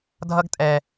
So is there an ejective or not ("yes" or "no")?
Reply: yes